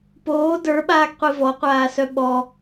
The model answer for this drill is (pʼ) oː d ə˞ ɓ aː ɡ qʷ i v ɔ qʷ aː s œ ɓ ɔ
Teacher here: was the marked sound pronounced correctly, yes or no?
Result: no